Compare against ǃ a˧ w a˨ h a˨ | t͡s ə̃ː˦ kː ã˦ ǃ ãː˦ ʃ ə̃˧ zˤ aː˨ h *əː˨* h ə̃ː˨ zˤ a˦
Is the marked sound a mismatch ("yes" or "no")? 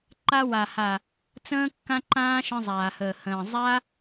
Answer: no